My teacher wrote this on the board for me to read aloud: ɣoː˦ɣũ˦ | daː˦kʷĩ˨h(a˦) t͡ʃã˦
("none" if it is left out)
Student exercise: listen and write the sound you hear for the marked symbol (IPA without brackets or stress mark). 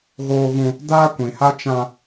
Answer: a˦